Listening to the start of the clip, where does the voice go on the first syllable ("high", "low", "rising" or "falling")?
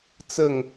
falling